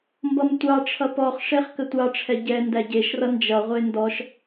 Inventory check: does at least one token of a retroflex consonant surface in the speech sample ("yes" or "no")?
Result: yes